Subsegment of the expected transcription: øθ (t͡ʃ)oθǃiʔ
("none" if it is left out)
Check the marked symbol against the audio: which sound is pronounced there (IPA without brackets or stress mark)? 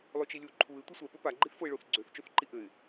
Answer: t͡ʃ